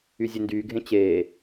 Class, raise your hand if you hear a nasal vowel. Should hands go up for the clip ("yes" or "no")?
yes